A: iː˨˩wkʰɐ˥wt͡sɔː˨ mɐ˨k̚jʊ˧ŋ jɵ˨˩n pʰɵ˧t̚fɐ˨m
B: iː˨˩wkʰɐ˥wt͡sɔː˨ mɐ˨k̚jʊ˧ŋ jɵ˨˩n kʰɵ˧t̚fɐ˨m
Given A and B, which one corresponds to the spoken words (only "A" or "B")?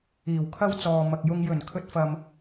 B